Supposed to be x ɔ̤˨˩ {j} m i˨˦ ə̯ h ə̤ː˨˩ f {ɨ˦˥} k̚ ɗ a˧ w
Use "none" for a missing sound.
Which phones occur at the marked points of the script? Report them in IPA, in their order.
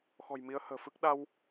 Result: j, ɨ˦˥

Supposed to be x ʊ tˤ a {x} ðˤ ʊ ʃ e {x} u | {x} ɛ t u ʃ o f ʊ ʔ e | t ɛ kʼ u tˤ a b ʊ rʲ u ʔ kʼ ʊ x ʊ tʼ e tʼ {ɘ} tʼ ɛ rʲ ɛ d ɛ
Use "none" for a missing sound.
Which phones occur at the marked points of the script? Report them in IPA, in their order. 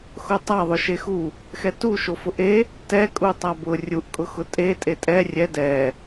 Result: none, x, x, e

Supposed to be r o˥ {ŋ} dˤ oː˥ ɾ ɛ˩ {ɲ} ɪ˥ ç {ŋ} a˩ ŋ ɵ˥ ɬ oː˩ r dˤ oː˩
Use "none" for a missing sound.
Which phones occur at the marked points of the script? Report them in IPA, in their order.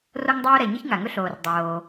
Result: ŋ, ɲ, ŋ

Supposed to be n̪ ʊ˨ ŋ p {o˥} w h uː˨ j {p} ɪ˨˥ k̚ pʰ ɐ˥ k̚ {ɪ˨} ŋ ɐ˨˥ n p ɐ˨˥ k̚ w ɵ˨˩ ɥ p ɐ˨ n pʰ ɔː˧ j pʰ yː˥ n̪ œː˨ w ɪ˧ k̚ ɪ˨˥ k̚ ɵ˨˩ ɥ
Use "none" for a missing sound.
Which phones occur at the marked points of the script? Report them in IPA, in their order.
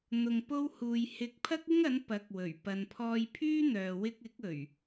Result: o˧, h, ɪ˥

